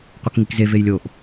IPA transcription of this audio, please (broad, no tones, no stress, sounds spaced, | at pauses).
qʷ ʌ k ŋ i k z e v e j lʲ o ʔ